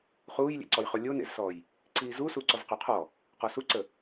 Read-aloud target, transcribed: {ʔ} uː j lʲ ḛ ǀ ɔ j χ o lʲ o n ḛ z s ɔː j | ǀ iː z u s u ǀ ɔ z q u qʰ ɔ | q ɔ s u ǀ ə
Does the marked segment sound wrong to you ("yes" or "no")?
yes